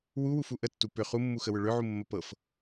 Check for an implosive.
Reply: absent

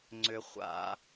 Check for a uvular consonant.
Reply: present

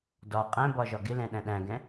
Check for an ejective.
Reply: present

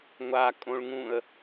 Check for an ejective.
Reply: present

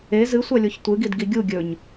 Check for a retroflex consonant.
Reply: absent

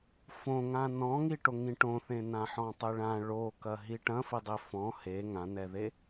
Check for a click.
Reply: absent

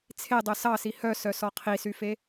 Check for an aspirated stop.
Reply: present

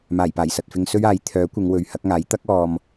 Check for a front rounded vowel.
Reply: present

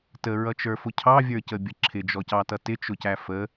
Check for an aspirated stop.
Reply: present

